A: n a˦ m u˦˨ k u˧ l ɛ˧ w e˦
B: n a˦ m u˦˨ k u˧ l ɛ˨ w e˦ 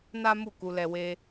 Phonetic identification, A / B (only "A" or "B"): A